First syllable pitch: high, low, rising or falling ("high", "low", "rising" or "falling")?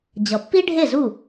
low